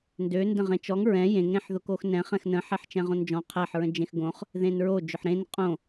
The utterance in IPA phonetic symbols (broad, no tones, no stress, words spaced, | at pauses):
ndø ndə̃ʁẽt͡ʃɔŋ ɹɛ̃ jẽŋ ɾẽħðʊkoxnɛ̃ χɛ̃xnə̃ ħɛħt͡ʃɛ̃ʁõnd͡ʒɔ̃ qʰæħ ɹə̃d͡ʒẽxɡõχ | ðẽnɹo d͡ʒʊħɾẽn qʼõ